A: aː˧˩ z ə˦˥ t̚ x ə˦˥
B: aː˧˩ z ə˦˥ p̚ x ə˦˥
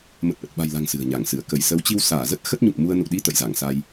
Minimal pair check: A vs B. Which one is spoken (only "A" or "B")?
A